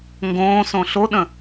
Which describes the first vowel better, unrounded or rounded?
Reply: rounded